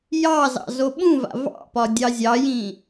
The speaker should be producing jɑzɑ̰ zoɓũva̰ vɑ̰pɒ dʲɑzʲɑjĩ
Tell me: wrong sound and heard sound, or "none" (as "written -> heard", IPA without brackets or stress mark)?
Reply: none